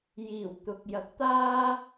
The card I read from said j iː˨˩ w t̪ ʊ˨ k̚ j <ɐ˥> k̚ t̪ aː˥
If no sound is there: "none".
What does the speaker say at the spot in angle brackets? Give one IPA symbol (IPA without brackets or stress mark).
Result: ɐ˨˥